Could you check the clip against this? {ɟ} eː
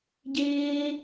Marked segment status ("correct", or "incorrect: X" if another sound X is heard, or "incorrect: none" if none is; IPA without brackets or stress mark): correct